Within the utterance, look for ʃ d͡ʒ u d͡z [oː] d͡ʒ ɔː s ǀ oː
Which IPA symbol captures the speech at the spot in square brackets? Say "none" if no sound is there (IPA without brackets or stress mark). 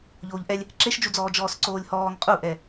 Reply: ɔː